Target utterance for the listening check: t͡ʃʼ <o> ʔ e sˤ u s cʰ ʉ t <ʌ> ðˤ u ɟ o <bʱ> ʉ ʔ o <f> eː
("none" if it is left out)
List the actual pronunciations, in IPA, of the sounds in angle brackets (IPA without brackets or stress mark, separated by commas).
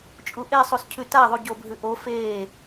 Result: u, a, bʱ, f